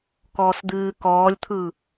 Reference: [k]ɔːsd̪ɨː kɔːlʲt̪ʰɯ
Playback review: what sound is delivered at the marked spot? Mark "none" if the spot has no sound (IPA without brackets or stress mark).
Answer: k